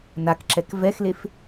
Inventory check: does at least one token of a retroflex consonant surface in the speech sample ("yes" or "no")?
no